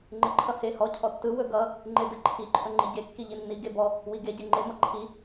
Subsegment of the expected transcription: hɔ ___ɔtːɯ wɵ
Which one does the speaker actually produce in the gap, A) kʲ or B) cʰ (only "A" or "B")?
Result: B